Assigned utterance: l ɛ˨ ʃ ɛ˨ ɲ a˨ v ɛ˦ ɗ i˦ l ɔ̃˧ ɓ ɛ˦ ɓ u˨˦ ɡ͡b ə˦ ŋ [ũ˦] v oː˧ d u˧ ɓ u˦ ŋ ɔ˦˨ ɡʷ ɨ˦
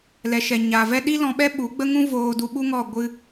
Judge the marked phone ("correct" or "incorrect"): correct